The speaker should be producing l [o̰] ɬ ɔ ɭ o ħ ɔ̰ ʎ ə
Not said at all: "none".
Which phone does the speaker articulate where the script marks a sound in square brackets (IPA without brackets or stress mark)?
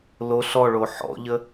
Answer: o